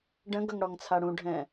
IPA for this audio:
ɖ ə̃ ɡ ʌ ŋ ɽ ɔ ŋ t͡sʰ a ɽ ũ ɖʱ ɛ̃

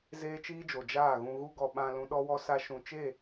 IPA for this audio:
z eː˦ t͡ʃ iː˦ d͡ʒ o˨ d͡ʒ aː˦˨ ɣ ũ˧ ɣ u˦ ɡ ɔ˧ ɓ ã˧ l ũ˧ ɗ ɔ˦ w ɔ˦ s a˧ ʃ ũ˨ t͡ʃ e˦˨

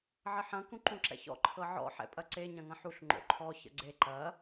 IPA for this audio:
ʕ ə ħ ɐ̃ k ũ ǃ ũ ǁ ɛ̰ ç ɔ̰ ǃʰ ɤ ʕ ɔ̰ ħ ɛ̰ pʼ ɐ ǀ e ɲ ɐ̃ ŋ ɐ̃ ħ u ɬ ŋ͡ǃ o̰ ǃʰ ɔ ç ə̰ ɡ͡ǀ e ǃ ɐ

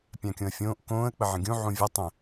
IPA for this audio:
pʲ ã kʲ õ ə̯ fʲ õː ʔ k õː ə̯ k͡p ə ʕ ə̃ ɡʲ ũ ʕ ũ vʲ a tˤ ə̃

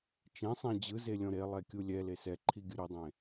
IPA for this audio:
t͡ʃ ẽ sˤ ẽ d͡ʑ ɯ z e lʲ ɔ̃ ɾ e lˠ ɛ kʲ u lʲ ɛ l e s ɛ ǃʰ i ɡʲ ɯ ɾ u dˤ ẽ

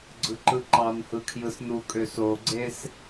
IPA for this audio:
ɡ͡ǀ ɯ ǃ ɯ ǃ ɑ n h ɯ kʰ j ɯ s n u kʼ ø s o ɡ͡ǀ e s

